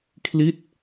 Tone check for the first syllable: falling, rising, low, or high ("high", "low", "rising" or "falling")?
falling